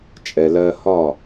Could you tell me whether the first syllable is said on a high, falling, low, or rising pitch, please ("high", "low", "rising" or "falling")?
low